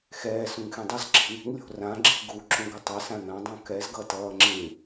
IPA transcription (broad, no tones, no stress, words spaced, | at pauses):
xɛː sũŋxẽdˤʌz ǁi̤n̪i̤ŋ lʲo̤rã ɡ͡ǁi̤ɡu ǁũɡʌtˤɛ sãn̪ã dˤũkɛz ɡʌtʌːŋ͡ǁĩ